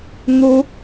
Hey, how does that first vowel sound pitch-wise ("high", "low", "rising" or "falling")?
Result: high